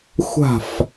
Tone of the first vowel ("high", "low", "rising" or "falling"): falling